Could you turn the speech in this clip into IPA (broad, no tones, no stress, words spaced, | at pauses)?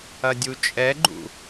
ɐdʲut͡ʃʼɛɡ͡ǃṵ